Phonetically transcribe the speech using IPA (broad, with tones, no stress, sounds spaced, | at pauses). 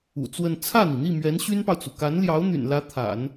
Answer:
ṵ˨˩ t͡s w ə˥˧ n t͡sʰ ä˥˩ n̪ i˩ n̪ i˥˩ m ɥ ɛ˧˥ n ɕ y˥ n p ɑ˨ ʊ̯ t͡s u˩ k a˧˥ n l j ɑ˧˥ ʊ̯ n̪ y̰˨˩ n l ä˧˥ t̪ʰ a̰˨˩˦ n